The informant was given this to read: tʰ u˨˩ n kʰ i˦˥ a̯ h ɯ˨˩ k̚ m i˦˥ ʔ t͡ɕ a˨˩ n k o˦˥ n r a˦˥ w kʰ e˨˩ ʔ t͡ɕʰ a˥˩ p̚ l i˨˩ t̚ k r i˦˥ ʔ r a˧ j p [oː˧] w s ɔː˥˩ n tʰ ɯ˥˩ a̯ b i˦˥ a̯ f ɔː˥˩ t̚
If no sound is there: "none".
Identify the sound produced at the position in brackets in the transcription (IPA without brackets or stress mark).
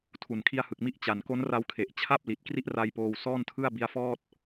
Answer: oː˧